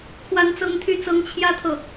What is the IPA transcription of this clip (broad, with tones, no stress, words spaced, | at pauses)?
kʰwa˥nt͡sɤ˥ŋt̪ʰy˥t͡sɤ˥ŋ t͡ɕʰjä˥t̪ʰɤ˨